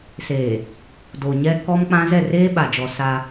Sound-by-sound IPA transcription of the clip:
s eː˨ | d o˨ ɲ ɛ˦ k ɔ˦ m k͡p ã˦ z ɛ˦˨ r eː˦ ɓ a˨ d͡ʒ ɔ˨ s a˦

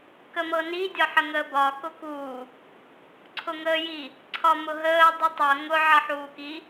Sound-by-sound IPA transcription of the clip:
k ə m ɤ n i dʲ ɒ ħ ə ŋ əː b ɒ k ʊ k uː | ǀʰ ʊ ŋ əː j i | ǀʰ ɒ m ʊ ɦ əː dˤ u tˤ ɤ ŋ ʊ ʕ ʌ ħ uː k i

